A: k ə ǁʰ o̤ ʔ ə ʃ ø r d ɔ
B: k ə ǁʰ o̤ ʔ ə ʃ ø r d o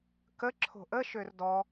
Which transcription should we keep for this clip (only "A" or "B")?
A